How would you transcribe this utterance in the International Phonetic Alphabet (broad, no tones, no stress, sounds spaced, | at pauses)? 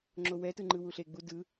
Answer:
ŋ͡ǁ o w ɛ t ɯ ŋ͡ǃ ɯ w u ɬ e ɡ͡b u d ɯ